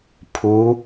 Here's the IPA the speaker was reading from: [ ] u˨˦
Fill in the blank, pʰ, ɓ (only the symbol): pʰ